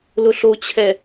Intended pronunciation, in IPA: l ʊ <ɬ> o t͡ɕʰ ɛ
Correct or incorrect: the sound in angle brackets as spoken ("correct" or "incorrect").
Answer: correct